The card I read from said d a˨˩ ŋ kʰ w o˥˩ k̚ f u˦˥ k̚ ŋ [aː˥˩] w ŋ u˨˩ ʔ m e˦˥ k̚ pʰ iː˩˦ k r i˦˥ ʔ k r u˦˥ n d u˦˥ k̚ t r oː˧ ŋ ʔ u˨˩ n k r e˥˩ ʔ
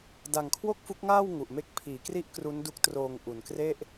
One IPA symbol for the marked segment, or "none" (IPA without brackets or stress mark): aː˥˩